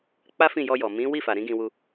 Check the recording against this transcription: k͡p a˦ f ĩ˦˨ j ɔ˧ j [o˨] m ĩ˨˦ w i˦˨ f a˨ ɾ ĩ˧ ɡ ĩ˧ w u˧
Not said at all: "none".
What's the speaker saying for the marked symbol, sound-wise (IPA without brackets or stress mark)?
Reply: ɔ˨